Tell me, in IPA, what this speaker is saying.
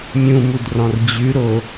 mʲũmudrɔ̃r d͡ʑʉɾo

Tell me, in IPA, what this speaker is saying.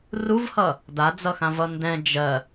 ruvhʌ | dad͡zʌxãvʌ ndɛ̃ d͡ʒɜ

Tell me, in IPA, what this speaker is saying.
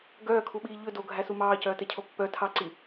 ɡœːkʰuɓiː ʎɵ doɡʱæsu mɑːcœːtɛcʰo pːœ tʰɑǀi

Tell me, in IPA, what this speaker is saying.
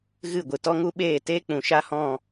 ɣɨ˦˨ɡʷɨ˨ tɔ˦ŋu˦ɓeː˦˨ teː˦k͡pũ˨ ʃa˦hɔ̃˦˨

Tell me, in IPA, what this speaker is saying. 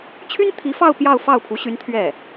t͡ɕʰy˥n t̪ʰi˧˥fɑ˥˧ʊ̯ pjɑ˥˧ʊ̯fɑ˥˩ʊ̯pʰu˧˥ɕy˧˥n t̪ʰɥɛ˥˩

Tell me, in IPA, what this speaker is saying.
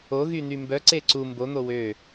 oɣyn̪y mbœǀe ǀu mbon̪o wø

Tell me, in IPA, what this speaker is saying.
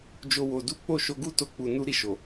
d͡ʒo˦wo˧du˦ k͡po˦˨ʃo˧ɡu˦to˧ k͡pu˧nu˦ ɾi˦˨ʃo˨

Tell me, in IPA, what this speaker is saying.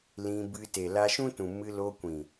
lĩ˧bɨ˧ te˨la˧ʃũ˦tũ˨ mɨ˧lo˧kʷĩ˨

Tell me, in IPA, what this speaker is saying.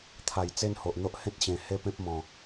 t̪ʰa˨˩jt͡se˦nho˨ʔn̪o˦ʔ hẽ˦t̚ɕẽ˨˩ he˦pẽ˦p̚mɔ̃˨˩

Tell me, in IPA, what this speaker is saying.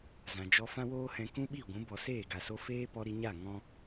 zã˨d͡ʒɔ˧ fã˦woː˦hɛ̃˧ kũ˦ɓi˦˨ɡʷũ˨˦ bɔ˨seː˦˨ɡa˨so˧ feː˦pɔ˧ɾi˧ɲa˦˨ ŋɔ̃˦

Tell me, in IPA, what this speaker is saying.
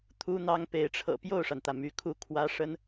t̪ʰu˥n̪ɑ˥ŋpe˧˥ɪ̯ ʈ͡ʂʰɤ̰˨˩ pjo˥˩ʊ̯ʂa˩nt̪ä˩ my˧˥kʰu˥˩ kʰwä˥ ʂə˥n

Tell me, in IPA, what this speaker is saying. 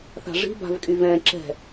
θa̤ʐi̤ ba̤vkʼyvɛ̃ ǁɛ̤

